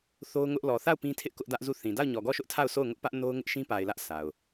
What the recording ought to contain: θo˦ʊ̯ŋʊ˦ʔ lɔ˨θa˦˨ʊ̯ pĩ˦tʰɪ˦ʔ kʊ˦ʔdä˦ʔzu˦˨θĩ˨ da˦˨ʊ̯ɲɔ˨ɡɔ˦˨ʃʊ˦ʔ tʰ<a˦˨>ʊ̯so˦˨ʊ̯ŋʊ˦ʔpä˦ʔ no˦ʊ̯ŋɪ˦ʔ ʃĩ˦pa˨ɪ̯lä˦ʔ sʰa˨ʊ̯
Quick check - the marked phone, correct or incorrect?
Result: correct